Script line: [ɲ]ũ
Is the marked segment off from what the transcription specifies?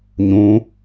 no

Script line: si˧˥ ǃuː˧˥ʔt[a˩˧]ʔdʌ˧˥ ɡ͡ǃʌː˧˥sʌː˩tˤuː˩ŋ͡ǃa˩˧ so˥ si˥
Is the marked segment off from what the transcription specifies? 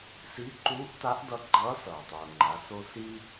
yes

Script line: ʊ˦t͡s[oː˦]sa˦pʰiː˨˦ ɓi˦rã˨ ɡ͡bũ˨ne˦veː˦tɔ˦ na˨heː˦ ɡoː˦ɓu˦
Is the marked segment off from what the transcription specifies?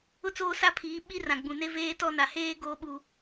no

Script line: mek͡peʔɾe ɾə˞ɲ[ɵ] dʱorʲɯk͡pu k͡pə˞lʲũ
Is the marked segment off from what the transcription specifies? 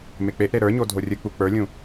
yes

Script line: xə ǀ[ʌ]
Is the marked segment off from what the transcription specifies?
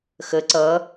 no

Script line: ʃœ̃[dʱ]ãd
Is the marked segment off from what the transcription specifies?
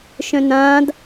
yes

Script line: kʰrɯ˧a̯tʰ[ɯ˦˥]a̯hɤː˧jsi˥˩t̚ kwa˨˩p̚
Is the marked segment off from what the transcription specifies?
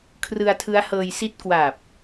no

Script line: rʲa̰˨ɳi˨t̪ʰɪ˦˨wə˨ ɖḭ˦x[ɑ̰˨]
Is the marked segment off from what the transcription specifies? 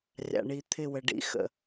yes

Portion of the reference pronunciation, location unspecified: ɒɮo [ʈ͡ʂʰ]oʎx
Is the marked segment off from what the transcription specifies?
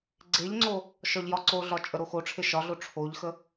no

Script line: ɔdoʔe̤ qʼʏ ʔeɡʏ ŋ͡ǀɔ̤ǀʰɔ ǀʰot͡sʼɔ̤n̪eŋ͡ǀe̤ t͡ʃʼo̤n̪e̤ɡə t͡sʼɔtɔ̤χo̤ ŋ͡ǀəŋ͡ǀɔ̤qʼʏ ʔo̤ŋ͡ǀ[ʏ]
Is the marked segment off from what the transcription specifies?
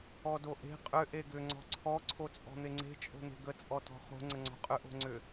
no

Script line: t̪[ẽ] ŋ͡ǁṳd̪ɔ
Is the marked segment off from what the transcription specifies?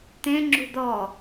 no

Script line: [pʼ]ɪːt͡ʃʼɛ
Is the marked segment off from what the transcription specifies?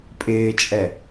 no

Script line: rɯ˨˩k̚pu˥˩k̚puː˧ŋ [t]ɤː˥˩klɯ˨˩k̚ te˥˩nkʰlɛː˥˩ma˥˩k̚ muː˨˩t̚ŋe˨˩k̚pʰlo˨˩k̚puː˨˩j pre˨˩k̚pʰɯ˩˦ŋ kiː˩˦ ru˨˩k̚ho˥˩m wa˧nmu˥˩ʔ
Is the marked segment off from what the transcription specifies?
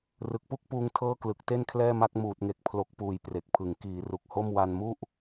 yes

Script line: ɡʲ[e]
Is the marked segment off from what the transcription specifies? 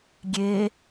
no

